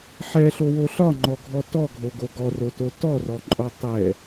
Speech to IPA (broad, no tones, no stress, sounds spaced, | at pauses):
ħ ɛ ɬ o w o ɬ ɒ ŋ͡ǃ ɔ ɡʱ ɔ t ɔ ɡʱ o ɡ o ɡ ɔ r o t o t ɔ r ɔ ǃʼ ɔ tˤ ɛ